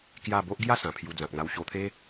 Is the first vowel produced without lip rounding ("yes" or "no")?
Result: yes